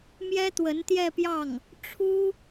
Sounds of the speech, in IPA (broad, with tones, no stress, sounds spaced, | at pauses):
m j ɛ˥ t̪ w ə˧˥ n t̪ j ɛ˥˧ p j ɑ˥˩ ŋ | ʈ͡ʂʰ u˥